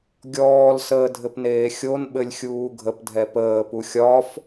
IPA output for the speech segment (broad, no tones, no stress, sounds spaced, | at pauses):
ɡʲ ɔː l s əː dʱ ɘ p n eː xʲ o n ɓ ɘ lʲ xʲ uː ɡʱ ə p dʱ ɛ p əː p u xʲ ɒ f